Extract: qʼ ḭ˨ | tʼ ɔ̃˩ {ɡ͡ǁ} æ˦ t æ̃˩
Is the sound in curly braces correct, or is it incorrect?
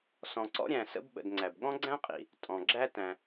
correct